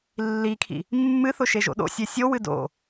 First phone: lː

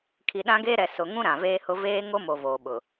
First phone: kʰ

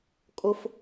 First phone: kʼ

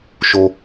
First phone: ʃ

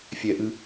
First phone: fʲ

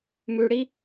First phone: m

